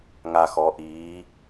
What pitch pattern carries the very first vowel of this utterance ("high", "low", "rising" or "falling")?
low